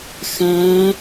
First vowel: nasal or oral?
nasal